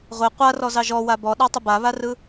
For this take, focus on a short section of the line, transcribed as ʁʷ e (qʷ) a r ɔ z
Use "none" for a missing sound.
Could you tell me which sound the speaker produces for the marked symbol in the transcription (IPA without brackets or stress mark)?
qʷ